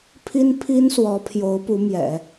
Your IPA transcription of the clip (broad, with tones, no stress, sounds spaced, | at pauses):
pʰ i˥ n pʰ i˥ n s w ɔ˧˥ pʰ j o˧˥ ʊ̯ p u˧˥ m j ɛ̰˨˩˦